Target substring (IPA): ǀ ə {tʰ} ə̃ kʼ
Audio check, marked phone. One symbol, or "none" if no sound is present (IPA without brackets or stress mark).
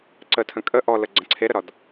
tʰ